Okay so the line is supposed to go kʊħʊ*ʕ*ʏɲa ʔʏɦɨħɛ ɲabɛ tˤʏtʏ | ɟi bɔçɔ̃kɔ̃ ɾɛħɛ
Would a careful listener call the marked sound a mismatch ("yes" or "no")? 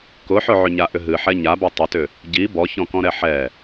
no